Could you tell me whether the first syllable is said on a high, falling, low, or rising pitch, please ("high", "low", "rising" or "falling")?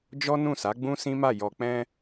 high